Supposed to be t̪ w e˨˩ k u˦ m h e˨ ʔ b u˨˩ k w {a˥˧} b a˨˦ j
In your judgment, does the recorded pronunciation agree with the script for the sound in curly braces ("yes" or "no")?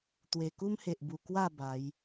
yes